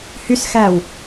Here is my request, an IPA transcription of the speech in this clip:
h y s x æː w

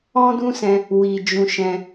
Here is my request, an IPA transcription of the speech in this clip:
ɔ̃˦ d ũ˦ s ɛ̃˧ | w i˨ d͡ʒ ũ˧ ʃ ɛ̃˧

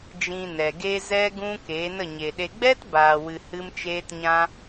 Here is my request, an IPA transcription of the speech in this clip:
d͡ʒ ĩ˧ n ɛ˨ ɡ e˦ z ɛ˦ ɡ ũ˦ k e˨˦ n ə˦˨ ɲ e˨ ɗ e˧ ɡ͡b ɛ˦ t b aː˨ w ɨ˨ h ɨ˦ m t͡ʃ eː˦ t ɲ ã˦

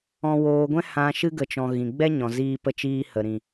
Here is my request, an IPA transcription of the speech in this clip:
ɔ̃˧ w oː˧ ɡʷ ɛ̃˦ h ã˧ ʃ ɨ˧ ɡ ə˨ t͡ʃ ɔ̃˨ ɣ ĩ˨ ɡ͡b ɛ˦ ɲ ɔ̃˨ z iː˧ p ə˧ t͡ʃ iː˧ h ə˨ ɾ ĩ˨

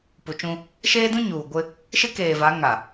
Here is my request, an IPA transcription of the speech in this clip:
p u˨ t͡ʃ ũ˦ | ʃ eː˦ d ũ˦ ɲ uː˨ ɡʷ ɪ˦ | ʃ ɪ˦ k eː˨ v a˨˦ ŋ a˨

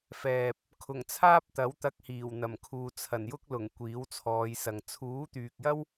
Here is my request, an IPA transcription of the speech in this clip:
f ɛː˨ p̚ | kʰ ʊ˨˩ ŋ t͡sʰ aː˥ p̚ t̪ ɐ˨˥ w t̪ ɐ˧ k̚ h iː˨˩ w n̪ ɐ˨˩ m kʰ uː˨ t͡sʰ ɐ˨˩ n j ʊ˥ k̚ l ʊ˨˩ ŋ kʷ iː˨˥ w t͡sʰ ɔː˨˧ j s ɐ˨ ŋ t͡sʰ uː˨˥ t̪ yː˨ k̚ j ɐ˥ w

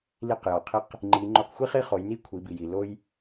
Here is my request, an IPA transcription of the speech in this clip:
l i˧ q j ɒ˩ qʰ i˧˥ q | ŋ͡ǃ i˩˧ ŋ͡ǃ o˧ q xʷ i˥ χ i˥ χ o˩˧ j n i˥ kʷʰ i˩˧ b i˩ j i˩ l o˥ j

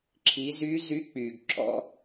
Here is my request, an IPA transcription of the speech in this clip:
ǁʰ i˩˧ z y˧˥ z y˧˥ k͡p y˩ ɡ ǁ ɔ̰˧˥

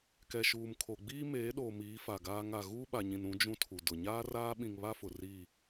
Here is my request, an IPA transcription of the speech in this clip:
k ɛ˨ ʃ uː˨ m kʰ o˨ ɡ͡b iː˦ m eː˨˦ ɗ oː˨ m iː˨˦ f a˨ ɡ aː˦ ŋ a˦˨ ɣ uː˦ ɓ a˨ ɲ ĩ˨ n ũ˨˦ d͡ʒ ũ˦ tʰ u˨ d ʊ˨ ɲ aː˦ r aː˦ ɓ ĩ˨ ŋ β a˦ f ʊ˨ r iː˦˨

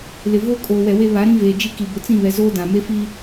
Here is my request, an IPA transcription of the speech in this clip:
l ɪ˨ v oː˦ kʼ oː˨ w ɛ˨ w e˦ β a˨˦ ɾ ĩ˦ v eː˨ d͡ʒ i˦ k i˨ b ʊ˨ t͡s ĩ˦˨ β ɛ˨ z oː˦ d ã˨ m e˦ f iː˦

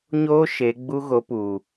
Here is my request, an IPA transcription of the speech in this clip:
ɲ oː˦ ʃ e˨˦ ɡ͡b u˦ ɣ o˨˦ p u˨

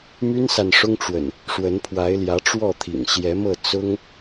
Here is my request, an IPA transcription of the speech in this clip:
m y˦ n s a˨ n ʂ ʊ˦ ŋ ʈ͡ʂ w ə̰˨˩ n | ʂ w ə˨˦ n pʰ w a˨˦ ɪ̯ l j ä˨˦ ʈ͡ʂ w ɔ˥˨ t̪ʰ ḭ˨˩ ŋ ɕ j ɛ˨˦ m ɤ˥˨ t͡s ʊ˦ ŋ

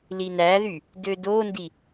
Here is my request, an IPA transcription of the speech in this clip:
l i n æ ð y | d ø d o n d i

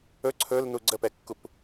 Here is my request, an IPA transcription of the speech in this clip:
ɵ ǀʰ ɵ l n u ɡ͡ǀ ə p ɛ kː u p

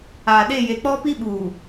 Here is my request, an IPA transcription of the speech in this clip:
aː˨ ɗ e˦˨ j e˨ k͡p ɔ˦ p i˦ ɓ uː˨

